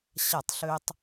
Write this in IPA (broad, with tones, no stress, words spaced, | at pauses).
ɕa˦˨tˤɬø˦tˤ